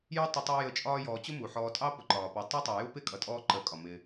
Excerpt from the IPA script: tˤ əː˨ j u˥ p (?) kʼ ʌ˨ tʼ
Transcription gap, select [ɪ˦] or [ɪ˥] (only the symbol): ɪ˥